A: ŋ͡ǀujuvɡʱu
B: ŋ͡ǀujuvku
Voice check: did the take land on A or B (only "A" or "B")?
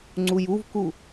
B